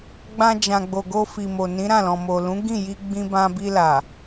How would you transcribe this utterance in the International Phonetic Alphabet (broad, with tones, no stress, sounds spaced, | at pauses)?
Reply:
ɡ͡b ã˧ d͡ʒ ã˨ ɡ͡b o˨ ɡ o˧ f i˨ m o˨ n ĩ˨˦ ɾ ã˦˨ l ɔ̃˨ m o˨ l ũ˨˦ ɡ ĩ˦˨ j i˧ ɡ͡b ĩ˧ b ã˧ b i˧ l a˨